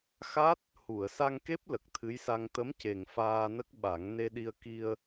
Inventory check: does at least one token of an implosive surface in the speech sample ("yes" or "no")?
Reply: yes